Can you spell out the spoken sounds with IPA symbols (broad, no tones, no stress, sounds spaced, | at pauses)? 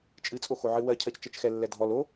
t͡ʃʼ ɨ t͡sʼ o x o ʕ ɨ w ɜ cʰ ɜ c t͡ʃ ɜ t͡ʃ x ɛ lː ɛ dʱ ɔ l o